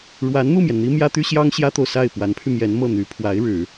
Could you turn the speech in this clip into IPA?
ɻ w a˧˥ n n̪ u˥˩ m j ɛ˩ n n̪ i˥ m j ä˥ t̪ y˥ ɕ j ɑ˥ ŋ ɕ j ä˥ t̪ o˨ ʊ̯ s a˥˩ ɪ̯ p w a˧˥ n pʰ y˧ m j ɛ˧˥ n m ɤ˥˩ n̪ y˧˥ pʰ w a˧˥ ɪ̯ ɻ ɻ̩˨˩˦

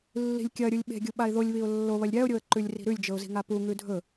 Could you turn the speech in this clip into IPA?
lː i̤ lʲ kʲ ɐ ɾʲ u lʲ ɓ e̤ ɡʲ u ɓ a ɪ̯ ð o lʲ β i ʊ̯ lː o β ɐ lʲ ɾʲ a ʊ̯ ɾʲ o ə̯ ǃ ʉ lʲ r i̤ ɾ ʉ lʲ d͡ʒ ɵ ʊ̯ z i̤ ŋ a p u ŋ ʉ dʱ ɵ

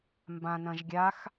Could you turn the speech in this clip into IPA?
m b ã n ɐ̃ ʒ ɡʲ a x

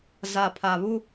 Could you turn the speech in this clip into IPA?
z a˨ pʰ a˨ β u˦

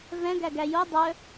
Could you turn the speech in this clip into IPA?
v ɛ̃ ɡ æ ɡ æ j o dˤ œ

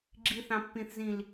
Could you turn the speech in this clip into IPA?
ɡ͡ǁ i θ ɑ̃ pː ĩ θ z ĩ l

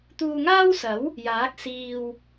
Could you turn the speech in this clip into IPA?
t̪ uː˧ ŋ aː˥ w s ɐ˨˥ w | j aː˨˥ k̚ s iː˧ w

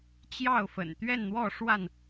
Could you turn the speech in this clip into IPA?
t͡ɕ j ɑ˥˨ ʊ̯ f ə̰˨˩ n t̪ ɥ ɛ˥˨ n n̪ w ɔ˥˨ ʂ w a˥˨ n

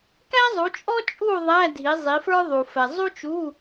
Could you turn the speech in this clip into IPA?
k æ˥ zˤ u˨˦ t͡ʃʼ ɔ˥ t͡ʃʼ u˥˨ ðˤ æ˧˥˧ dʱ i˨˦ zˤ i˨˦ f ə˞˥ ðˤ u˨ f ɛ˨ zˤ u˥ t͡ʃ u˧˥˧

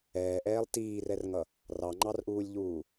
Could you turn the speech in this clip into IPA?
ɛː ʔ ɛː lˠ t iː r ɛ r ŋ ʌ | r ɑ ŋ͡ǃ ɑ r ʔ uː lʲ ʎ uː

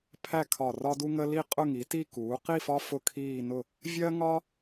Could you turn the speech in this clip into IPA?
pʰ æ˥˨ kʰ ɒ˧˩ r ɒ˦ d u˦ ŋ ə˦ l i˥˨ qʼ ʊ˥˨ ŋ i˩˥ t i˥˨ k uː˩˥ q i˥˨ f ɒ˦ f ʊ˥˨ kʰ iː˥˨ n ʊ˥˨ | vʲ ɜ˦ ŋ ɒ˦

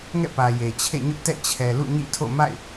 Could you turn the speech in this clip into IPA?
ŋ ɛ̰˦˨ p ä˨ j e˨ t͡ɕʰ ḛ˦˨ ɲ ʊ˦ ʔ t ɛ̰˦˨ t͡ɕʰ ɛ˨ l ṵ˦˨ ɲ ḭ˦˨ tʰ o̰˦˨ m a̰˦˨ ɪ̯

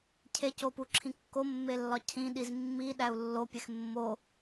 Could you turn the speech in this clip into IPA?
cʰ e c o p u ǁʰ ĩ kː o mː e lː ɒ cʰ ĩ ɗ i z mː i ɗ æ u̯ lː o pʲ e x mː o

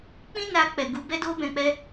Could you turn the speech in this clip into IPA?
k͡p ĩ˦ n a˧ k͡p ɛ˨ ɡ u˨˦ b ɛ˦ d o˦ b ɛ̃˧ k͡p ɛ˦

